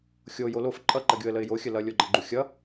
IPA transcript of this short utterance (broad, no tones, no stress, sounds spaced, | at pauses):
xʲ o j o l o f ǃʼ ʌ ǃ ʌ ɡʲ o ə̯ l ə ɪ̯ j o xʲ ə l ʌ lʲ o ɡ͡ǃ ʌ ɡ͡ǃ u xʲ ʌ